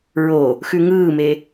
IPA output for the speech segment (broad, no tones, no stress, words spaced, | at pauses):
ɹo | xʉŋɯːme